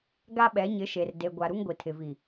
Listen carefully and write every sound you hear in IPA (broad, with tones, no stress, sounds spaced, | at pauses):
ɡ a˦ ɓ ɛ˨˦ ɲ ɪ˨˦ ʃ e˨ r d e˨ ɡʷ a˨ ɾ u˦ ŋ ɡʷ i˨ tʰ ɪ˨ v i˨